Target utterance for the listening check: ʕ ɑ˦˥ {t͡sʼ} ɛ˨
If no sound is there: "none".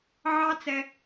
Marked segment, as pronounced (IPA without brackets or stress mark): t͡s